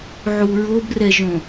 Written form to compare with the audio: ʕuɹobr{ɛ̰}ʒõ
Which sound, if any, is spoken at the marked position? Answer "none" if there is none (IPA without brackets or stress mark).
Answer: ɛ